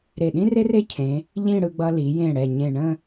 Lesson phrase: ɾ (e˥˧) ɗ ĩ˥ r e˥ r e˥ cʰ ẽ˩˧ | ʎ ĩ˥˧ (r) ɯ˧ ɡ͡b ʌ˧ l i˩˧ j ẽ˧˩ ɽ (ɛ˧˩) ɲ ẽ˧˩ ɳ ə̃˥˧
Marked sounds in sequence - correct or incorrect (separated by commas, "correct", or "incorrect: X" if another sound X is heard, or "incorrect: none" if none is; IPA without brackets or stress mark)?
incorrect: e˧˩, incorrect: ɽ, correct